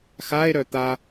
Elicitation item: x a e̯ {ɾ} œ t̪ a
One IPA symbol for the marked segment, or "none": ɾ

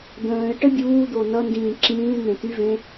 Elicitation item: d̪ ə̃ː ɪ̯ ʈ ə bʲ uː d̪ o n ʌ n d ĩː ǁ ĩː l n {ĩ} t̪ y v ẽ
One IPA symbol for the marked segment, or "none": ẽ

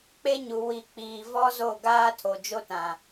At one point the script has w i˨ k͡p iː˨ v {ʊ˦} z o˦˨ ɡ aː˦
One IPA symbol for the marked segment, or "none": ɔ˦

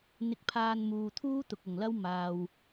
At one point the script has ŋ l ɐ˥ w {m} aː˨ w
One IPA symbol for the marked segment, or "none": m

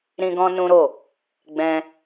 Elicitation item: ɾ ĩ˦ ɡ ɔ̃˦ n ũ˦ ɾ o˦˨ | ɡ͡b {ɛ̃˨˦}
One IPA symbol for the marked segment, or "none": ɛ̃˧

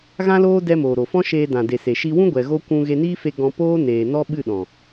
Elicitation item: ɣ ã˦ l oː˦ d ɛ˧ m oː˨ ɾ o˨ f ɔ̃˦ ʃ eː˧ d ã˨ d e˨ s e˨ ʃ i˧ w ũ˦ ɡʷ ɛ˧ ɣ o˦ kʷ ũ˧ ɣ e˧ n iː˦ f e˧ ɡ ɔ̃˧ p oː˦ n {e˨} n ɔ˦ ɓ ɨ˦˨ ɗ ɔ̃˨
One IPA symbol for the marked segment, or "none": eː˨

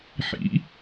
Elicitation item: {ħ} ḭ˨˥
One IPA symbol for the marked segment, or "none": ħ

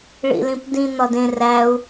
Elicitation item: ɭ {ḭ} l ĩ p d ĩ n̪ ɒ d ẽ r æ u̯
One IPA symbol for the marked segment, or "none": ḭ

